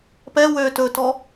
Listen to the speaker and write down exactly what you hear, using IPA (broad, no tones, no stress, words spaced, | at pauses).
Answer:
pɛ wø tɵtɔ